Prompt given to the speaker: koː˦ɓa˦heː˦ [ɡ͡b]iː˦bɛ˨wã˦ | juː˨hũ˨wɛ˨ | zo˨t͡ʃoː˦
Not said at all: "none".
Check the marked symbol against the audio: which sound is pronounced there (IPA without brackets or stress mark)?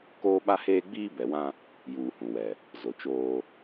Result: ɡ͡b